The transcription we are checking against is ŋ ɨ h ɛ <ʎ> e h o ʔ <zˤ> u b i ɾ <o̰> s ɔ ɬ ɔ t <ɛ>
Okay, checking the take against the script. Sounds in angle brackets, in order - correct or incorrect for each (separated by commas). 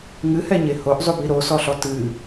incorrect, correct, incorrect, incorrect